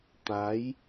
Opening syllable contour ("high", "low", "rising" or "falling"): rising